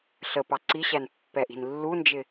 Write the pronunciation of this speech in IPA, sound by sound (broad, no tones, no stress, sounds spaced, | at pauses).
ɬ ə p ɑ ǀ i ɕ æ n pː ɛ ʔ i̤ n lː u n d͡ʒ ɪ